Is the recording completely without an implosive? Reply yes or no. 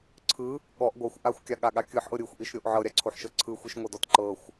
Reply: no